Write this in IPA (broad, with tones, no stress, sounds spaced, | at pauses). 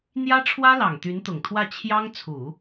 n̪ j ä˥ ʈ͡ʂʰ w ä˥ l ɑ˨˩ ŋ t̪ y˧˥ n t̪ ʊ˨˩ ŋ t̪ʰ w ä˥˩ t͡ɕʰ j ɑ˥ ŋ t͡sʰ u˨˩˦